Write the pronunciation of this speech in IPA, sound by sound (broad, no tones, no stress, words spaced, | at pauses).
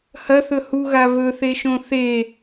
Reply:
hɐθɵ huɣa βɵθeʃõ θe